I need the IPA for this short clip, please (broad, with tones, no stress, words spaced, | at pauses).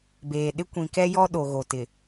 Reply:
beː˨ɗɪ˦ kʷĩ˨kɛ˦jɔ˦ ɗo˨ɣo˨tɪ˨